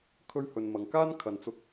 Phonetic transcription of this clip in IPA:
kʰ ɵ˥ ɥ h ɵ˧ n m ɐ˧ ŋ k aː˥ n kʰ ɐ˨ n t͡s ʊ˧ k̚

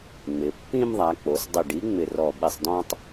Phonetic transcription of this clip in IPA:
ŋ͡m ɪ˩˧ pː ĩ˦ m ðˤ a˩˧ k͡p o˩˧ s dˤ ɨ˧˩ ɖ i˨˥ ŋ͡m ɪ˧˩ r ɔ˧˩ ɓ i˧˩ sˤ d ɔ̃˦ tˤ

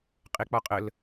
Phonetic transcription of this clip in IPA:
qʼ e k͡p ɒ qʼ ə l

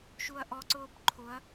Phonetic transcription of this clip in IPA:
ʃ u ɐ̯ ʔ ɔ ǀ ʊː b ǃʰ ʊ ɐ̯

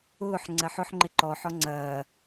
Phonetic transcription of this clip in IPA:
ʊː ħ ŋ͡ǀ ɐ ħ ʊ ħ ŋ͡ǃ ɪ ǃ ɔ ħ ɔ ŋ͡ǀ ɐː

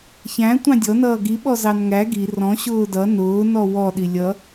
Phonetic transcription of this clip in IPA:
ç æ̃ tʷ ɑ̃ dʲ ɔ n ʌː ɡ i ɓ ɔ z ɑ n ŋ æ ɡ i r ɔ̃ ɕ ʊː d ʌ n ʊː n ɔ w ɔ ɗ i lʲ ʌ

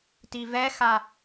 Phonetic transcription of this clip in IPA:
t i v ɛ x a

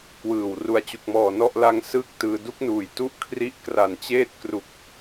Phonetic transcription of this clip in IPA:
k w ɯː˨˩ w r u˨˩ a̯ t͡ɕ u˨˩ k̚ m ɔː˨˩ n ɔ˥˩ ʔ l a˧ ŋ s ɯː˥˩ k̚ t ɯː˧ d u˦˥ k̚ n uː˨˩ j t u˦˥ ʔ kʰ r i˦˥ ʔ k r a˨˩ n t͡ɕ eː˥˩ t̚ k r u˨˩ k̚

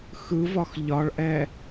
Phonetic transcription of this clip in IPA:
x ɯ v ɒ x ʎ ɒ ɭ ʔ ɛ

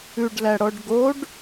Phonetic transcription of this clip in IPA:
ʉ ɖ l æ ɽ ɔ ɖ ɡ o ɖ

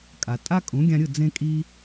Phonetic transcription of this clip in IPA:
kʼ a˩ tʼ a˥ kʼ ũ˩˥ ɡʲ ã˧ ɾʲ ɯ˥˩ d͡z ẽ˧ kʼ i˧

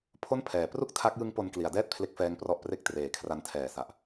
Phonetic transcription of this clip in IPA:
pʰ o˥˩ n pʰ ɛː˩˦ p r u˥˩ k̚ tʰ a˦˥ k̚ j ɯ˦˥ ŋ p o˧ n k l i˩˦ a̯ d ɛː˥˩ t̚ pʰ l e˦˥ k̚ f ɛː˦˥ ŋ p r ɔ˦˥ ʔ p r e˥˩ k̚ t r eː˨˩ kʰ r a˧ n tʰ ɛː˨˩ s a˨˩ ʔ

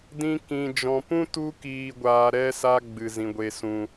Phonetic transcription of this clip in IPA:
d ĩ˦ k ĩ˧ d͡ʒ ɔ̃˧ p ũ˦ t u˦ k iː˧ ɡʷ aː˧ ɾ ɛ˦ s a˦ ɡ͡b ɨ˧ z ĩ˧ ɡʷ e˧ s ũ˧

